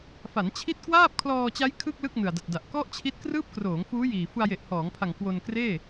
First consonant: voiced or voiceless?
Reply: voiceless